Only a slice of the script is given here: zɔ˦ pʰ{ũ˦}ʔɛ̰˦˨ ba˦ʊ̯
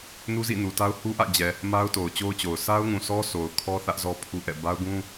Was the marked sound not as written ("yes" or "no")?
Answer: yes